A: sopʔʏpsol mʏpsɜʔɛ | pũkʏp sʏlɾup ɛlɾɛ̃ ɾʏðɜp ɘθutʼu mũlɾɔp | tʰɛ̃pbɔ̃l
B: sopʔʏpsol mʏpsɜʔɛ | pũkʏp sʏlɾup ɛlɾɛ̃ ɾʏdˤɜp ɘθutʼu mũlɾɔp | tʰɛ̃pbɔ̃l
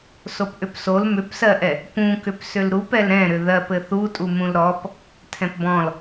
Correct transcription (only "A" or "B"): A